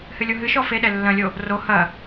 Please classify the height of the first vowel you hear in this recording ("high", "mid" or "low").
high